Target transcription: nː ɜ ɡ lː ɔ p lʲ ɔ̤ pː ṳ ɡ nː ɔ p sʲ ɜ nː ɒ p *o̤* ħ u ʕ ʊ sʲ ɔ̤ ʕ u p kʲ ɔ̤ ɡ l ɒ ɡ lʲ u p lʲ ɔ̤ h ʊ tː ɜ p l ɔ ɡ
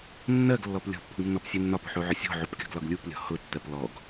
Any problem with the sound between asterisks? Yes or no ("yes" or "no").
yes